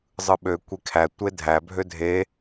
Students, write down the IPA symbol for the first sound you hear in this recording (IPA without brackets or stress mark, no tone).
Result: zˤ